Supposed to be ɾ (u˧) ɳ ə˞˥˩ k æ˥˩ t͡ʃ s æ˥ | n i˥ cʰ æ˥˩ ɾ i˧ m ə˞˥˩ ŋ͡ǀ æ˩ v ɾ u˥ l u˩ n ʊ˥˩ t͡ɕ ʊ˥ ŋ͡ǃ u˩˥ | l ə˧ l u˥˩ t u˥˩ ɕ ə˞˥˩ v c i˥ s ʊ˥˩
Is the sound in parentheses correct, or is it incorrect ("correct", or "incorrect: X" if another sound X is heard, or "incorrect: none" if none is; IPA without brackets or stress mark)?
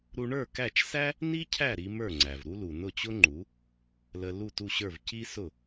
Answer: correct